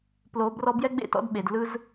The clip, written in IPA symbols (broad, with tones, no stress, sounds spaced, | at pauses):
p l o˧˥ b r ɔ˥ b j ɛ˥ ɡ͡b ḛ˥ t ɔ̰˧˥ d ɓ e˩˧ d l ɯ˥ z